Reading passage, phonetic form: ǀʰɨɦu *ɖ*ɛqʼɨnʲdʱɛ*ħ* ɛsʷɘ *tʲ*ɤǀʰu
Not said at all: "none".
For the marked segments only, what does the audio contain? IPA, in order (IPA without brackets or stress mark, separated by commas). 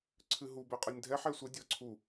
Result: b, ħ, dʲ